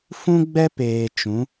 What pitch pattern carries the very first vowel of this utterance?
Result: high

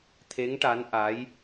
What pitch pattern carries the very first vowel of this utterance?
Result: rising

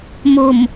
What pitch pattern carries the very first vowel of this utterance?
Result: low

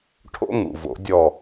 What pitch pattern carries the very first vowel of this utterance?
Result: high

